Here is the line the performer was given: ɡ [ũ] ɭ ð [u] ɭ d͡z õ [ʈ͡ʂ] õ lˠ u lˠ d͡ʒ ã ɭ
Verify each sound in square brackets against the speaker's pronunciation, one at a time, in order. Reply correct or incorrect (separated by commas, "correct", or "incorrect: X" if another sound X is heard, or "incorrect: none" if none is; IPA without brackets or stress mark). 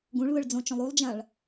correct, incorrect: ɯ, incorrect: t͡ʃ